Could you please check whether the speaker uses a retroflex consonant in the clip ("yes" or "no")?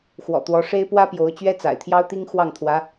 yes